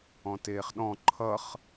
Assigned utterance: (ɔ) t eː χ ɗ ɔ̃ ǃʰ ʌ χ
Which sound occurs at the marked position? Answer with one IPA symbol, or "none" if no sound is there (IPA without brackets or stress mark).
ɔ̃